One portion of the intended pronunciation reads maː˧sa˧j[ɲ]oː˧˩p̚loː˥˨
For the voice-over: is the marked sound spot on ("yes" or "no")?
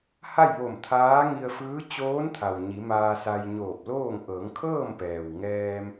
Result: yes